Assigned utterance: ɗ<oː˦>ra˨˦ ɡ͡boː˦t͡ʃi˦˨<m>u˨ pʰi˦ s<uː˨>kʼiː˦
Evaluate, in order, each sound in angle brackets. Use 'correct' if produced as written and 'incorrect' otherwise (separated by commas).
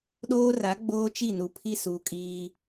correct, incorrect, correct